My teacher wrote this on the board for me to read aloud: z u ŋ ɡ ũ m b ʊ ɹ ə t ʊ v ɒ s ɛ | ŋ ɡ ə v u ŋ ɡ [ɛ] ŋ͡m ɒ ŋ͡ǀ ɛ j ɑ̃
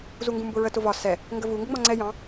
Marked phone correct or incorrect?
incorrect